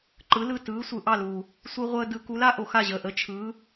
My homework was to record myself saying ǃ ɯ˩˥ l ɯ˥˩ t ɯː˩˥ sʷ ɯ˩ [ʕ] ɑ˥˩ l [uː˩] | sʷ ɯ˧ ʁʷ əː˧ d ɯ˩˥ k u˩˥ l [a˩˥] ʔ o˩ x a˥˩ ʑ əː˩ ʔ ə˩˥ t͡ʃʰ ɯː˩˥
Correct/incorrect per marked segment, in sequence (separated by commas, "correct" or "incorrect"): incorrect, correct, correct